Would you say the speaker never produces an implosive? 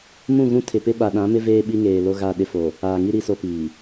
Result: no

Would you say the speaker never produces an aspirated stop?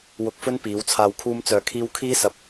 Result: no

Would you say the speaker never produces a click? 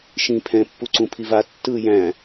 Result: no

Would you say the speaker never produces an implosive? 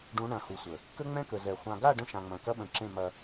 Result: no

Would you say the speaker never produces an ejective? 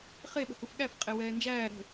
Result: no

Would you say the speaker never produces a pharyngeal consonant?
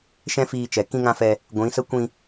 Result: yes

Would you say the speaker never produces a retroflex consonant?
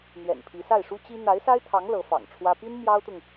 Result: no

